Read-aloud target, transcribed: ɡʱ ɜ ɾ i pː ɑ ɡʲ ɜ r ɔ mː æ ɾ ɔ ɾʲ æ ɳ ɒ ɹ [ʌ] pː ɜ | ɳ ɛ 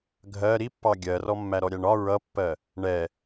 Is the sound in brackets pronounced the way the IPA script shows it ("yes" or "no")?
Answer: yes